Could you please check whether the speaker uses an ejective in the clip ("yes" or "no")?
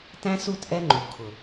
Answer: no